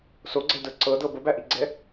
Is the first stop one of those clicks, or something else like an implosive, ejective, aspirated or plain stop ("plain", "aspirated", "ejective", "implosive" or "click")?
click